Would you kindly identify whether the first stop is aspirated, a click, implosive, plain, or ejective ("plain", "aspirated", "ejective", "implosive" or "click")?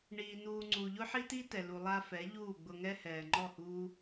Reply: click